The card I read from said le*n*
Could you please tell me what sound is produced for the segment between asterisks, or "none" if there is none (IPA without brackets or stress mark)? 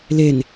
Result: n